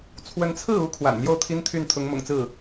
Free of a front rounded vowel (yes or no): no